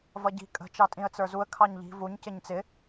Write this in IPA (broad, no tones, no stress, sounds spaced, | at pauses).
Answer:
v ʌ ɟ i̤ kʼ ə̤ t͡ʃ ɑ tʼ ĩ ə̯ t͡s ə˞ z u ə̯ kʰ ɑ ɲ ʎ i̤ v u ɲ c ɪ ɲ t͡s ɪ